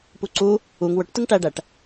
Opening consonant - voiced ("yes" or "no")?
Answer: no